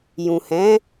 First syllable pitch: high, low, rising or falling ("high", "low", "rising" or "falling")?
low